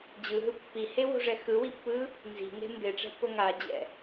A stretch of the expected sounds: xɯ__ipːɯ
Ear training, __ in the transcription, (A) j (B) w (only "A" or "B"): B